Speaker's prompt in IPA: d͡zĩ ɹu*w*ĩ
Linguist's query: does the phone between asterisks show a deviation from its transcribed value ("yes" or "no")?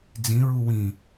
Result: no